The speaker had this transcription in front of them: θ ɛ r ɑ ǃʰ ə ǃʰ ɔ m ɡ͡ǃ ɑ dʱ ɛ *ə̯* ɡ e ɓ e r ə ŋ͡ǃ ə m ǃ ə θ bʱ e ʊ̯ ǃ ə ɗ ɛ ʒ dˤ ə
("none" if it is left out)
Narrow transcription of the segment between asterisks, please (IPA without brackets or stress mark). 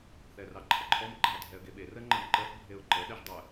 ə̯